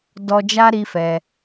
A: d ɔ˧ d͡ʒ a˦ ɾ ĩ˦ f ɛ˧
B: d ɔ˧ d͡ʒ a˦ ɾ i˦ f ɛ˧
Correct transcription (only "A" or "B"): B